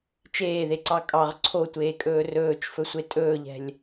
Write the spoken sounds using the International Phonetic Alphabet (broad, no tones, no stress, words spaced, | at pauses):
t͡ʃeːðeǀɑ kʼɑʁ ǀʰotʷeːkʼɵː rɵːt͡ʃfɵsʷe tʼɵːʎɛ̤lʲ